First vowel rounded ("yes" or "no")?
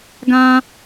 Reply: no